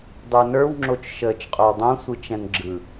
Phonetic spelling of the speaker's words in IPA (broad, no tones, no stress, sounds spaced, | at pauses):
dˤ ə˞ n ə˞ w ŋ͡ǁ o t͡ʃ ʃ əː t͡ʃ qʼ o w dˤ õ sʷ ɯ t͡ʃ ɛ̃ n ɡ͡ǁ ɯ